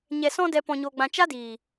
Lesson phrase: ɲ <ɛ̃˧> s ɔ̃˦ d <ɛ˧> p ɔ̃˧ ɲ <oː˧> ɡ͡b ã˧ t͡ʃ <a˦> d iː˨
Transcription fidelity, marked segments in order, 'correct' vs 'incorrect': incorrect: ɛ˧, correct, correct, correct

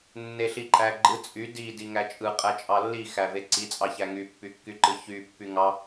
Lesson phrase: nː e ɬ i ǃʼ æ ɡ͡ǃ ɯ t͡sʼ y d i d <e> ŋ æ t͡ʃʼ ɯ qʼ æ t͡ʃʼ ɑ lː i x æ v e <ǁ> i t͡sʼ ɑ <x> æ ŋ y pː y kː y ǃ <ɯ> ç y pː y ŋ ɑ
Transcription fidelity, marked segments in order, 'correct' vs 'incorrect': incorrect: i, incorrect: ǀ, incorrect: ç, correct

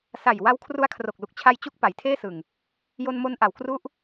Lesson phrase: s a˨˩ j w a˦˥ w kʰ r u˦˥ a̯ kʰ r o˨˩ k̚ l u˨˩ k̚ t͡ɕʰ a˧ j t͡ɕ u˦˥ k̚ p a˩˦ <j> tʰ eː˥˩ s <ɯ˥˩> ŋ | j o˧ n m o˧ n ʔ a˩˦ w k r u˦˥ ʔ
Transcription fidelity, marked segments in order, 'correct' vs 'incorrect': correct, incorrect: ɯ˨˩

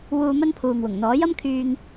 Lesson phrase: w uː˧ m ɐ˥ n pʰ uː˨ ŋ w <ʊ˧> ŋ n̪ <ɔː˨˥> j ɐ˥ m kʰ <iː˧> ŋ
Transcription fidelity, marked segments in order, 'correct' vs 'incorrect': incorrect: ʊ˨˩, correct, incorrect: yː˧

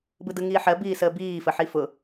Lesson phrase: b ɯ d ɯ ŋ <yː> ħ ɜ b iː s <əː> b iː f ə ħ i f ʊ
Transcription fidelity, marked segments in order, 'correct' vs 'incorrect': incorrect: iː, correct

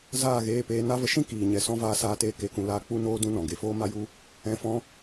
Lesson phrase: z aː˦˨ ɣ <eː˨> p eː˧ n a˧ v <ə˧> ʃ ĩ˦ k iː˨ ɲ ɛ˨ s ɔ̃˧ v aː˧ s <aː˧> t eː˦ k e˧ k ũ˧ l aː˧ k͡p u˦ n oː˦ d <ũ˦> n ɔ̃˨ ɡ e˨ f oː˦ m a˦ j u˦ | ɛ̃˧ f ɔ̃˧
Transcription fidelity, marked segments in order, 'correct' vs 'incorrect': incorrect: eː˧, correct, incorrect: aː˦, correct

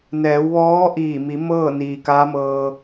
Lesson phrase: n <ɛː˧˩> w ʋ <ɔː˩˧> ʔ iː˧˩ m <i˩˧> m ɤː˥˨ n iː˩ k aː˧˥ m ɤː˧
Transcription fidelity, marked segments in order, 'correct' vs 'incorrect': incorrect: ɛː˩˧, incorrect: ɔː˧˥, correct

